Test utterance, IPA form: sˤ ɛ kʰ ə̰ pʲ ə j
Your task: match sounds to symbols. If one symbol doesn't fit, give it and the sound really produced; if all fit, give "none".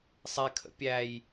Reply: ə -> æ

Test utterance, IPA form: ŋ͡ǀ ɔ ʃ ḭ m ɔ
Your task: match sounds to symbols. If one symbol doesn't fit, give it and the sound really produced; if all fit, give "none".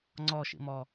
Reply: none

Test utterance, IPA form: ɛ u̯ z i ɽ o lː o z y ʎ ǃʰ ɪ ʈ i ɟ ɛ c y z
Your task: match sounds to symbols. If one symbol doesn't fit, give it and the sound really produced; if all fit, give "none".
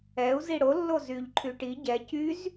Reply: ɪ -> y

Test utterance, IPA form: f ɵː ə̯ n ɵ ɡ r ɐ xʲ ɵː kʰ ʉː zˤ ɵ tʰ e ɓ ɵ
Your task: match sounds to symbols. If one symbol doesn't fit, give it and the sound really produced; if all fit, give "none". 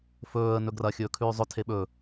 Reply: none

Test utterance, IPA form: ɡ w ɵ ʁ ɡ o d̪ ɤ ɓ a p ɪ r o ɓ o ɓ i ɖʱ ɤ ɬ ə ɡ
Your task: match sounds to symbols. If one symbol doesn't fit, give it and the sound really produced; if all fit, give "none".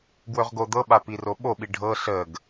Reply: ɪ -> i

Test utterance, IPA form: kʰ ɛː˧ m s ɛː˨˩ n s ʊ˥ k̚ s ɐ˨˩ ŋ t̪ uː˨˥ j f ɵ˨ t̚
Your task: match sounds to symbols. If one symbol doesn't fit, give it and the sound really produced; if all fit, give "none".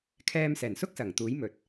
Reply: f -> m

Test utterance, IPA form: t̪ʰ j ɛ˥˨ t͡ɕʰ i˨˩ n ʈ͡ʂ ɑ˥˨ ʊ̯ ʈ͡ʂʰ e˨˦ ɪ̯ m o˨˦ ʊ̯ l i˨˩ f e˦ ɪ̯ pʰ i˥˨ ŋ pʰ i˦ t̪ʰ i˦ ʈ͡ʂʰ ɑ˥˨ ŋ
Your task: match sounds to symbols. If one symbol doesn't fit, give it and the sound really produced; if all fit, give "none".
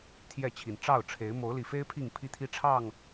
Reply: none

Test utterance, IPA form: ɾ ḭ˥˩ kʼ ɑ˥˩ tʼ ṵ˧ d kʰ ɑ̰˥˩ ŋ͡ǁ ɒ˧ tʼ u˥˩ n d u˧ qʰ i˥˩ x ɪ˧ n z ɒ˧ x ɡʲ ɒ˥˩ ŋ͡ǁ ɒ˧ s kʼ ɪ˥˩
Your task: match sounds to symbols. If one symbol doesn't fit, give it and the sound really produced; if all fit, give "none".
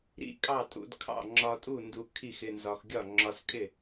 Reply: qʰ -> kʰ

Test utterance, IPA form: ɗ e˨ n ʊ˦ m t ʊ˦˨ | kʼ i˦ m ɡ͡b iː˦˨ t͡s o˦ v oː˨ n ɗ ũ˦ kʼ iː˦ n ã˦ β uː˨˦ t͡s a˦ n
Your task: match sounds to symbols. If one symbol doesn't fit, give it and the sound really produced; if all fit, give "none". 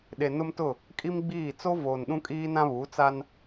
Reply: none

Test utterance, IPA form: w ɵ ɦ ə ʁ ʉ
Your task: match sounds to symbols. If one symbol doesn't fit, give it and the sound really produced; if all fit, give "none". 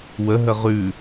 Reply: ɵ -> ə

